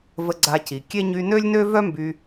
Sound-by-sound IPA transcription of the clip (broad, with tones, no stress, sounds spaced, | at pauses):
v ə˧ ɡ͡ǀ a˧ c i˩ kʲ e˥ ɲ y˧ n ø˥ lʲ n ø˥ v œ˥ m b y˧